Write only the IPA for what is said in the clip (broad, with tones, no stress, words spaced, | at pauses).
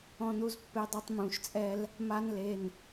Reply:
ɔ̃˦nu˦z pːe˦dˤɛ˦tˤmũ˩˧˩ʃt͡sʼɛ˦l | ma˦nle˩˧˩n